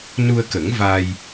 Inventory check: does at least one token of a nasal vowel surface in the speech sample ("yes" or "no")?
no